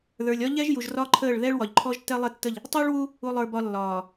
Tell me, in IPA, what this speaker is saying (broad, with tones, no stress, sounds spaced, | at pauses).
ð ə˞˨ lʲ ɒ˦ ʎ ɛ˦ ʒ j u˨ ʒ r ɒ˦ ǃʰ əː˦˨ ɭ ð ɛ˦ ɭ w ɒ˨ ʎ ǃʰ ɔ˦ ʒ tː ɛ˦ lˠ ɛ˦ tː ə˦˨ ʎ | tˤ u˦ ɭ w u˦ | u˨ lˠ ə˞˨ b ɒ˨ lː ɒː˨